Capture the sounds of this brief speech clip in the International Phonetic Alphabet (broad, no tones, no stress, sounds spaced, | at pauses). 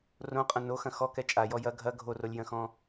r õ qʼ ɐ̃ n o x ɐ̃ x ɔ k ɛ t͡ʃʼ a j ɔ j ɐ ɡʱ ɐ ɡʱ o r o lʲ j ɐ̃ x ɔ̃